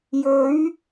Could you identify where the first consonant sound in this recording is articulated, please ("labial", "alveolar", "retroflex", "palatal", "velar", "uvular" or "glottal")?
palatal